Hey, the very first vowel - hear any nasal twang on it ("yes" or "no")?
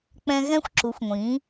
yes